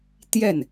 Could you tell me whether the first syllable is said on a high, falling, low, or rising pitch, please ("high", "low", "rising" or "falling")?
falling